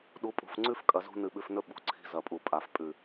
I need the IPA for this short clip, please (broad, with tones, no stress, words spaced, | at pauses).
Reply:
ɗu˨˦pʼṳ˨f ŋ͡ǀʉ˦fkʼɐ˨zṳ˧ nɨ˨ɓʉ˨fnɵ˧ ɓṳ˨˦ǀʰi̤˧ zɐ˨pʼu˨ pʼa˨f pʼʉ˨